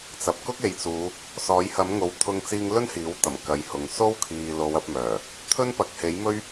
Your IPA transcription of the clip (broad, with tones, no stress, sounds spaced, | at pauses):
t͡s ɐ˨ p̚ k ʊ˥ k̚ e˨ j t͡s uː˨˧ | s ɔː˨˥ j h ɐ˨˥ m ŋ o˨˥ w t̪ʰ ʊ˧ ŋ t͡s iː˧ ŋ l ɵ˥ n h iː˨˥ w t̪ ɐ˨˩ m k ɐ˨˧ j h ʊ˨ ŋ s o˥ w kʰ iː˨ l o˨˧ w ɐ˨˥ p̚ m œː˨˩ | t̪ʰ ɵ˥ n p ɐ˨˥ k̚ h e˨˥ j m ɵ˥ ɥ